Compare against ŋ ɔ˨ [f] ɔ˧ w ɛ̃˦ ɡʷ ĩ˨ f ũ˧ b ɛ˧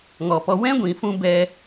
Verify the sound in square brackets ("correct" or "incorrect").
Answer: incorrect